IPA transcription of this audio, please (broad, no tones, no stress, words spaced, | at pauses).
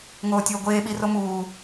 ŋoːtʲoːɡʷeː ɓiromuː